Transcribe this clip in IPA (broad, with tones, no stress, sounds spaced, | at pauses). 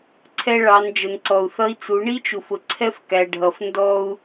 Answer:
ǀʰ ɛ˦ ɭ ɑ˨˦ n d͡ʒ ə˨ n ǀ ɔ˨ u̯ θ ʌ˦ i̯ t͡s u˨˦ ɳ i˦ t͡ʃ u˨ f ʊ˨ ǀʰ ɛ˦ f k æ˨ ɖʱ ʌ˨ f n d ɔ˦ u̯